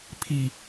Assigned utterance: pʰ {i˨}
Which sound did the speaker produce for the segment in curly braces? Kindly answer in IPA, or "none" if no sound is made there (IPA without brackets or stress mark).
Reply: i˨